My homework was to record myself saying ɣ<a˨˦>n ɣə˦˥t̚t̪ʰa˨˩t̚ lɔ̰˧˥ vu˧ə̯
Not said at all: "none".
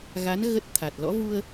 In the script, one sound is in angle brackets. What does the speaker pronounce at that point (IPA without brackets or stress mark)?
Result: a˨˦